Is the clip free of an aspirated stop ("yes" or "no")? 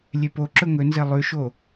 yes